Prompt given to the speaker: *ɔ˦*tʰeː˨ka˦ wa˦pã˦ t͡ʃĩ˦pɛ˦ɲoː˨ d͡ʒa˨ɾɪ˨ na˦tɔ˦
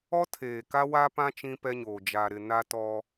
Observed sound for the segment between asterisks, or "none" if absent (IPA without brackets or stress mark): ɔ˦